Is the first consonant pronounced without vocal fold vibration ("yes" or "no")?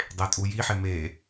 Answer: no